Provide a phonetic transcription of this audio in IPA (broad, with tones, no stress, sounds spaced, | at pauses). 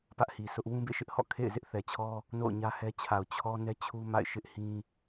p ä˦ ʔ h i˨ sʰ ʊ˦ ʔ w ũ˦ b ḛ˦˨ ʃ ɪ˦ ʔ h ɔ̰˦˨ kʰ ḛ˦˨ ɪ̯ z ɪ˦ ʔ θ ɛ˨ t͡ɕʰ ɔ˦ | n o̰˦˨ ʊ̯ ɲ ä˦ h ɛ˦ t͡ɕʰ a˨ ʊ̯ t͡ɕʰ ɔ˦ n ɛ˦ t͡ɕʰ u˦ m a̰˦˨ ɪ̯ ʃ ɪ˦ ʔ h ĩ˦